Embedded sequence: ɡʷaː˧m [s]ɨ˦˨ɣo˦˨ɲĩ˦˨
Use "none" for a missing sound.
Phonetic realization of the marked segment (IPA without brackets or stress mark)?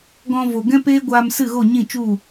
s